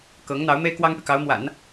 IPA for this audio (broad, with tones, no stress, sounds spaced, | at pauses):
k ɤ˧˥ ŋ n̪ ɑ˧˥ ʊ̯ m e˥ ɪ̯ k w ɑ˥ ŋ p y˨ k ɑ˧˥ ʊ̯ m w a̰˨˩˦ n